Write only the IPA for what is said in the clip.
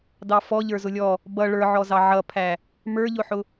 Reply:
dɑfɔ ʎə˞zʊlʲɔ | bʌ ɭə˞ʕɔzɑ ʕʌpʰæ | mə˞ʎʊħʊ

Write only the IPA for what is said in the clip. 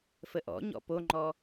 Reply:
fəʔɔ̰ɲɔ̰ poŋ͡ǃɔ

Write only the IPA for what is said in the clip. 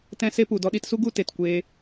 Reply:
tɛ̃˦se˦ pu˨dɔ˧ɗi˧tsu˦ ɡu˦te˨t kʷeː˧

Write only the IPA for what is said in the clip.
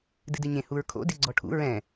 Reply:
dɨdɨɲẽ huɹkʰo̰ diɡ͡ǀɔʈʰṵ ɹɛ̃

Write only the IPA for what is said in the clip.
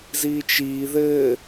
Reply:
ziːt͡ʃiː ðɘː

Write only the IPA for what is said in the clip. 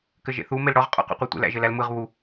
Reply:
kɘʒḛθu melɽɔʁ qʼɔ̰qṵqʷetʷḛl æ̰ʒɘlælmɯʁ βu

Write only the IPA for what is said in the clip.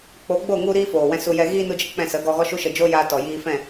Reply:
k͡po˨˦ɡ͡bo˦˨ŋu˧ɾiː˧ foː˨wɛ̃˧su˧jɛ˧ ɣiː˧ nu˧d͡ʒə˦˨ k͡pɛ̃˧sə˨˦ɡɔ˧ ɣɔ˦ʃu˦ʃə˧ d͡ʒo˦jaː˧tɔ˨ jiː˧fɛ̃˦˨

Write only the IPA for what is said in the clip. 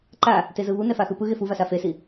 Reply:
ǃa | tezɯβunɛ faxɯpɯ ɣefuvasa fesi

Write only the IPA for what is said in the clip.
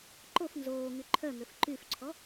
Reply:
ǃof nzoːŋy ǃʰœŋøf ǃyfǀʰɔ

